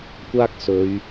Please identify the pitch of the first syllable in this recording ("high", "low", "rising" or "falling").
high